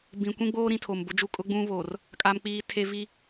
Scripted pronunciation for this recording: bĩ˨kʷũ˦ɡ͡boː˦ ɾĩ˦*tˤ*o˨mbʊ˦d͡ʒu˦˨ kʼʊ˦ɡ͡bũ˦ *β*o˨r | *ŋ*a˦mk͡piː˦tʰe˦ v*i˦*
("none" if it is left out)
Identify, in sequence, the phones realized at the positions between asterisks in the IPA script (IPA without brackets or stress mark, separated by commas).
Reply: tʰ, β, kʼ, i˦